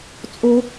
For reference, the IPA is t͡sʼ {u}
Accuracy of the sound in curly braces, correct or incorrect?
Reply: incorrect